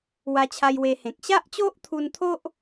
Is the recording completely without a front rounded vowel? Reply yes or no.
yes